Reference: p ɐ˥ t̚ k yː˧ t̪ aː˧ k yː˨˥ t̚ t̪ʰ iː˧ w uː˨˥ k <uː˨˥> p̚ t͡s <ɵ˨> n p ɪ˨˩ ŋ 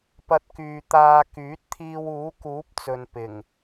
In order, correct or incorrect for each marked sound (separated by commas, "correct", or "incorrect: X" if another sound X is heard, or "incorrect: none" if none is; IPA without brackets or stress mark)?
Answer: correct, correct